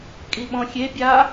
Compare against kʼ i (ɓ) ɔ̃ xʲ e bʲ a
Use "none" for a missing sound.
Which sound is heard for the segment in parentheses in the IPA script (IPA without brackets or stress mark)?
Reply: ɓ